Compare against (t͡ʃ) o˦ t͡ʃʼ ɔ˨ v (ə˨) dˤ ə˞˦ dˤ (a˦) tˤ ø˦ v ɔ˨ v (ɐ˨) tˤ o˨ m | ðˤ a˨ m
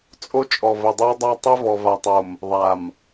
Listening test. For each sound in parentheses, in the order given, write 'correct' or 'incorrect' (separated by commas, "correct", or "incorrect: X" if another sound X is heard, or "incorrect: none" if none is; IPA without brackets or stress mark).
incorrect: t͡sʼ, correct, correct, incorrect: a˨